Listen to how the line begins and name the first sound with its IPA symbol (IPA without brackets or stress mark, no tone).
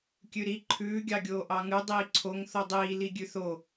kʲ